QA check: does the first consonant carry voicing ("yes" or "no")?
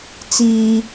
no